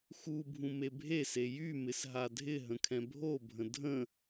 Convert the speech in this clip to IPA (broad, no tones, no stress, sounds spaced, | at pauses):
x u bʱ ũ m e bʱ e s e j y m ɪ s ɦ a dʱ ɪ ɦ ə̃ kʰ ɛ̃ bʱ o bʱ ə̃ dʱ ə̃